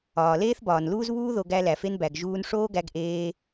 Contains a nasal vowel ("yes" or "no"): no